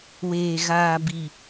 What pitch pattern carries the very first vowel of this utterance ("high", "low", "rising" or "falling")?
low